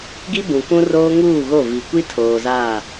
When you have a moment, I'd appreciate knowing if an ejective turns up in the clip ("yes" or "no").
no